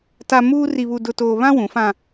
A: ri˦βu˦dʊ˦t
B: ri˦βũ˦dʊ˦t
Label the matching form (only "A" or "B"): A